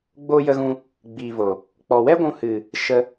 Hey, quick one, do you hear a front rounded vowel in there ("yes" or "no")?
no